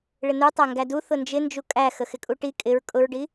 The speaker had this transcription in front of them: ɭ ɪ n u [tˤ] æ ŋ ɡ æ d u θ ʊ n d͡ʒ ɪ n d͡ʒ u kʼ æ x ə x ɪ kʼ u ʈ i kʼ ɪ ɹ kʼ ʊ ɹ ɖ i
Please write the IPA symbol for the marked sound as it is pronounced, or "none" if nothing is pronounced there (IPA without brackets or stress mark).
tˤ